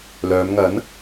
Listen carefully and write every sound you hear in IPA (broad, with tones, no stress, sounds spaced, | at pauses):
l œː˨˧ m ŋ ɐ˨˥ n